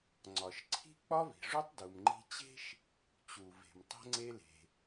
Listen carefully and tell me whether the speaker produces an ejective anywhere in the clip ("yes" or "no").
no